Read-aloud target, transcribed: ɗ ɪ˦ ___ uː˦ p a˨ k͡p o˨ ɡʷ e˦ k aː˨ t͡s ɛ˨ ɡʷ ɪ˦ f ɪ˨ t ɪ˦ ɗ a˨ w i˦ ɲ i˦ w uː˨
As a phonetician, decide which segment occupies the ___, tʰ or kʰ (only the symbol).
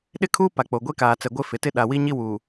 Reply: kʰ